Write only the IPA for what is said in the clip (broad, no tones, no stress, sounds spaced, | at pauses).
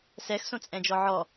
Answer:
s ɛ x s õ t͡sʼ ɛ̃ d͡ʒ ɔ ʕ ɔ